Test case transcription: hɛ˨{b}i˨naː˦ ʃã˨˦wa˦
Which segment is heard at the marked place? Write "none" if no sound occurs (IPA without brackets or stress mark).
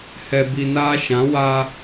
b